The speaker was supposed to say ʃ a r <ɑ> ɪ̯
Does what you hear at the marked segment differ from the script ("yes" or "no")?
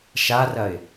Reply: yes